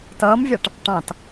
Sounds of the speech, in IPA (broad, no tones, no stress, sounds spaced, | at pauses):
t ʌː m vʲ ɑ ʈ | ʈ ɑ̃ t